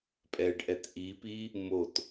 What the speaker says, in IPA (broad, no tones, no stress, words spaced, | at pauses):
pʼɛɖʔɛt ʔipi | mot